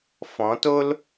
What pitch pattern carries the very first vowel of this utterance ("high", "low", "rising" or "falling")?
rising